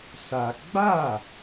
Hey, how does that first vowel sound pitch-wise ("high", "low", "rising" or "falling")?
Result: high